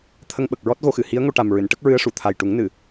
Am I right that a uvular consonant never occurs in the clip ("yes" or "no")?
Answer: yes